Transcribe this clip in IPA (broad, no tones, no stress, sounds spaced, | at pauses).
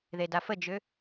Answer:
ð e d a f ə d͡ʒ ʏ